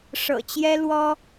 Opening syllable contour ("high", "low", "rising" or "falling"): low